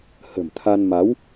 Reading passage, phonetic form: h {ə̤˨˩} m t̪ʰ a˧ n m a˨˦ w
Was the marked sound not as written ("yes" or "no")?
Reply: no